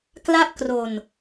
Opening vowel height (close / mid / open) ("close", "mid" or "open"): open